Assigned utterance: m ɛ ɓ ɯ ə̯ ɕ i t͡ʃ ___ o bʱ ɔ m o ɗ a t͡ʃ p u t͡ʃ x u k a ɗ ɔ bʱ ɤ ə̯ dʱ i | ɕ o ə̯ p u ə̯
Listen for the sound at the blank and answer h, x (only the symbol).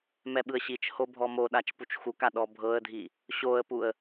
h